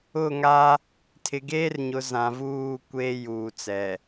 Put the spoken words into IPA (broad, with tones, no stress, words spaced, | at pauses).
ʊ˦˨ŋa˦ | tʰɪ˨ɡeː˦rɲʊ˨ zã˨vuː˦˨kʷeː˦ juː˨t͡sɛ˨